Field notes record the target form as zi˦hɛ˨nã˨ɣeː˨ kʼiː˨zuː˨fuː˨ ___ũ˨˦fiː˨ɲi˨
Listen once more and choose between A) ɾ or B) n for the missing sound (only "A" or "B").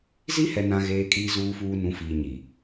B